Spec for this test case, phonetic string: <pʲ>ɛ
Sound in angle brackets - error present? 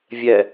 yes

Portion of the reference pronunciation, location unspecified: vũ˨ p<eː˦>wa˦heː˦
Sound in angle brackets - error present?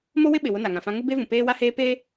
no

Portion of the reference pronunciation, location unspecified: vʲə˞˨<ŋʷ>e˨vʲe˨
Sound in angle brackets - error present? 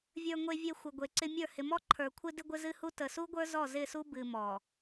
no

